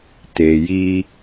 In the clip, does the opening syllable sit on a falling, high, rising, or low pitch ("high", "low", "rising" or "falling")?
low